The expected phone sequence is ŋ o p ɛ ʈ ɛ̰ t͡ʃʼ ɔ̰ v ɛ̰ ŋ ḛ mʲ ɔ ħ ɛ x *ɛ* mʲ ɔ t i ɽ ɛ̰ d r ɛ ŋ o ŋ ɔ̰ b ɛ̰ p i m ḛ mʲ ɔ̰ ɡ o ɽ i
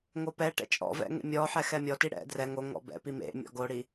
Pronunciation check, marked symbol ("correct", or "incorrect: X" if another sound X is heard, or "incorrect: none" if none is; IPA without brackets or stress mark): correct